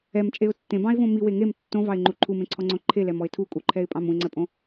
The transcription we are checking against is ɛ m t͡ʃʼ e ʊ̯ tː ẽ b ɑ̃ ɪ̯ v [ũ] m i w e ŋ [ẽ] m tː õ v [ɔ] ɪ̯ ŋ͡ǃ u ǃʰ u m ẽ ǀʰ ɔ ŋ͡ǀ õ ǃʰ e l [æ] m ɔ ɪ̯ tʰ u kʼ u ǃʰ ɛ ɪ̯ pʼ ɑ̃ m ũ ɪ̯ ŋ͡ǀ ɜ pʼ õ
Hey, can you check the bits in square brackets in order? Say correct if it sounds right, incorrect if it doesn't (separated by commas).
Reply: incorrect, incorrect, incorrect, incorrect